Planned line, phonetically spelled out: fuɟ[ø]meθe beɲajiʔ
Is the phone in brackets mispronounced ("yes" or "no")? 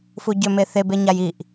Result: no